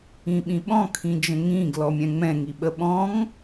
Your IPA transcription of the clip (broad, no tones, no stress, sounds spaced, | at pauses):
ĩ ɓ ĩ ɓ ɔ̃ kʰ ĩ d͡ʒ ə̃ ŋ ĩ ɡ l ɔ mʲ ɛ̃ ŋ͡m ɛ̃ ŋ i ɓ ə ɓ ɔ̃ ŋ